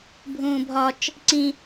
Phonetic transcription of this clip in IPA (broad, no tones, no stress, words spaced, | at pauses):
bʱũːbʱɒt͡ʃ | ǀĩ